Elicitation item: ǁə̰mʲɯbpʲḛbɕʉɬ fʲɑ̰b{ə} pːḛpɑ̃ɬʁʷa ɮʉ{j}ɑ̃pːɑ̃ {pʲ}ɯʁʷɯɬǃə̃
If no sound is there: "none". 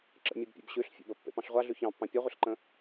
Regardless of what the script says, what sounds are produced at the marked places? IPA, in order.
ə, ç, pʲ

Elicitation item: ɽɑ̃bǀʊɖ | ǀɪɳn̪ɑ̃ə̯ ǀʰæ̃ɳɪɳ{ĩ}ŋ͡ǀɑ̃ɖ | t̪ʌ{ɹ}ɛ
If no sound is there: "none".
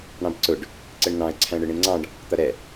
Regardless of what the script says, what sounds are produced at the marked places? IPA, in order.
ĩ, ɾ

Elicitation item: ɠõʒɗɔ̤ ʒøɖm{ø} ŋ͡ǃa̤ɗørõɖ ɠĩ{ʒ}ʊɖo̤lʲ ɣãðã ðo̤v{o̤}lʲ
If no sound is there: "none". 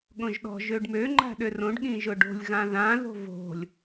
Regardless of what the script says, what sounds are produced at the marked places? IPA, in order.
ø, ʒ, o̤

